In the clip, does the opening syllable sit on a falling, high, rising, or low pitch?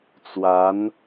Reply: rising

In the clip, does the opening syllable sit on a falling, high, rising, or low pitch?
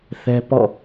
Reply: high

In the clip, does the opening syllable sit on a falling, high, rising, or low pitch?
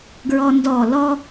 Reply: high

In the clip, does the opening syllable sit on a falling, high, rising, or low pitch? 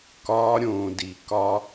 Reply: low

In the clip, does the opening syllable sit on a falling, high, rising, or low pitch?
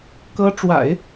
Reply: high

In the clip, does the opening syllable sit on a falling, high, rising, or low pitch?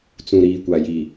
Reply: low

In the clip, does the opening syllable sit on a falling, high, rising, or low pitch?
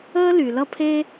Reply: high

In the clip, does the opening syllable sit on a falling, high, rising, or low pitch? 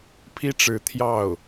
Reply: high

